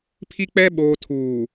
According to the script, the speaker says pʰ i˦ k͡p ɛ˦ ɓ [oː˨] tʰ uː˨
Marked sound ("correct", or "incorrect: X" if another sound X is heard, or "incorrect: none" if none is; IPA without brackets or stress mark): correct